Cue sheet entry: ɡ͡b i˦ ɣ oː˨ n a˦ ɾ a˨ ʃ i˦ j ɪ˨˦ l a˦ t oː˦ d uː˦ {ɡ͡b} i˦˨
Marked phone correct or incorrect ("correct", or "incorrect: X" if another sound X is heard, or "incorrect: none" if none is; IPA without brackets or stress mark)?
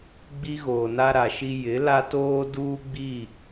correct